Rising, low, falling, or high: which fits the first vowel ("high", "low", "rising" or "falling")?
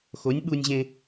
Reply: rising